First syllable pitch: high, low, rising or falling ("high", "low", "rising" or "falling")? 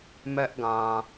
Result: high